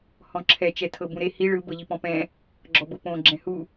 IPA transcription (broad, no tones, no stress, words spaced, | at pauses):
hɔ̃ǁʰɛ t͡ʃɛtʰɤbũɾe hi ɭɯ bɤʎipɔ̃pɛ̃ | ɡ͡ǁɔbɤpõ ɡ͡ǁɛ̃hu